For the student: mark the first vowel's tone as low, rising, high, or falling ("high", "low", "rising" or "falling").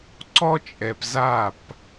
high